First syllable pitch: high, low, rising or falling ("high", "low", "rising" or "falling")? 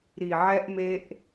low